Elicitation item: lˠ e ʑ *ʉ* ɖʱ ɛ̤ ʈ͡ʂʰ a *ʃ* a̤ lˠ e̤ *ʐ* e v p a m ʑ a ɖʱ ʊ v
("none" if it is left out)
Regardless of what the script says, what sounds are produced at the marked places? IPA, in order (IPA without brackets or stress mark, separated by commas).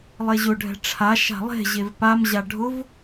ʊ, ʃ, ʑ